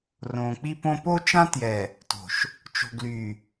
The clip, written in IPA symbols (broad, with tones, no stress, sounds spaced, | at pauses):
r õː˨ k͡p i˦ p õ˦ p o˦ t͡ʃ ã˦ t j ɛ˨ | t o̤˨ ʃ | t͡ʃ o̤˨ ɡ l y˨